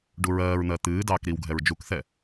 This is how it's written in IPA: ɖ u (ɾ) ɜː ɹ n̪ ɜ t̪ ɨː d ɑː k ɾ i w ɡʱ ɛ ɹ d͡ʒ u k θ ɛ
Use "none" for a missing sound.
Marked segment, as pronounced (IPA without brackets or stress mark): ɹ